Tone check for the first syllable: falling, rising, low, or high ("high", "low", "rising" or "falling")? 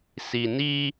low